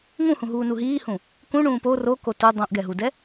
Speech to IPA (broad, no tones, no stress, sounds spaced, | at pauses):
ŋ ũ h ũ ɦ uː n u ɦ iː h ũ | k ũ ɳ ũː p o r o k o t u dˤ õ ʔ ɡ ɛ ɦ u d ɛ